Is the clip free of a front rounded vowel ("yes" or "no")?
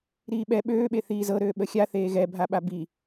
no